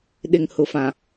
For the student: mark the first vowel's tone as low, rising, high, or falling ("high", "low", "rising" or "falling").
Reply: low